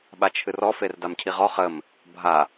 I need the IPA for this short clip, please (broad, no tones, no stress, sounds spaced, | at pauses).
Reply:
ɓ a t͡ʃʰ ɨ r ɔ f e r d a m cʰ i ʁ ɔ χ ə m | bʱ a